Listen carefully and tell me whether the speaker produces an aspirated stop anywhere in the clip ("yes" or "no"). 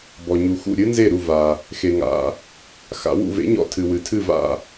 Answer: yes